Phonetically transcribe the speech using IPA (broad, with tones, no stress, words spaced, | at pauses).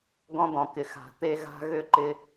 ɡɔ̃˦d̪ɔ̃˨kɪ˨ xa̤˨t̪e˦ ɣa̤˦ ɣʏ˦ǃɪ˦